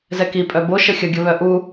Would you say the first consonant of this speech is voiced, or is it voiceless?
voiced